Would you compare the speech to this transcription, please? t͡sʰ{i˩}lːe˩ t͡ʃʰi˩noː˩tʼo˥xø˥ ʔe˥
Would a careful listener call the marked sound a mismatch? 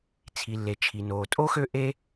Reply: no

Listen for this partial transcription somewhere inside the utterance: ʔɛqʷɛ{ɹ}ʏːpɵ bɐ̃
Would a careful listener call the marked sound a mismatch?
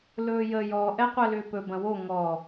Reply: yes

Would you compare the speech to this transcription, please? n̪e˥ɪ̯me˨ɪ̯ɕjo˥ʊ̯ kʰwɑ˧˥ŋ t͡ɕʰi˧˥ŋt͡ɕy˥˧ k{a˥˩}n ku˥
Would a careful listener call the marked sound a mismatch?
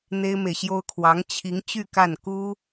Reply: no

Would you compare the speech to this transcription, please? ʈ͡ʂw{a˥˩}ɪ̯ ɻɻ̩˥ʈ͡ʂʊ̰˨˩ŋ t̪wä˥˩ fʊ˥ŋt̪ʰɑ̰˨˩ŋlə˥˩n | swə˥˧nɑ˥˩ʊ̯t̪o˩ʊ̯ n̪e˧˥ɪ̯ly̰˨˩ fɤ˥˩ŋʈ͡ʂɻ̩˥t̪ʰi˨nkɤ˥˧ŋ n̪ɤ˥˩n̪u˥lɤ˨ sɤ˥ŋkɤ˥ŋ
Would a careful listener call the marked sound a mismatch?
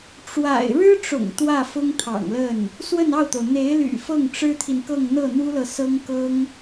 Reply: yes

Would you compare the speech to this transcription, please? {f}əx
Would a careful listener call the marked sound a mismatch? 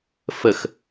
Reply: no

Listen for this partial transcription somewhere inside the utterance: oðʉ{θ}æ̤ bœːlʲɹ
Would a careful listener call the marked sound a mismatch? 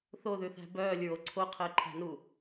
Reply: no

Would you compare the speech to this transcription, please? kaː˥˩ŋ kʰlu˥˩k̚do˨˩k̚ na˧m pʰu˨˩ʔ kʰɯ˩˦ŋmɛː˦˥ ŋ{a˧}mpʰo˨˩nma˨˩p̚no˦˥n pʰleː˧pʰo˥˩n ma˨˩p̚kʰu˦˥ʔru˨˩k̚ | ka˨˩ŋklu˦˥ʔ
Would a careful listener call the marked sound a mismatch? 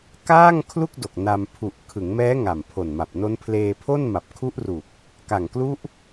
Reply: yes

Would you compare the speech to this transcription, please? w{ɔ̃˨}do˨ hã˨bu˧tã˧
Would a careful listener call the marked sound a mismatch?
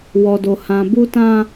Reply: yes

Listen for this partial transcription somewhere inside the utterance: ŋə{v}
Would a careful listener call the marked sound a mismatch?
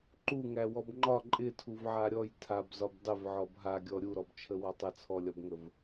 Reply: no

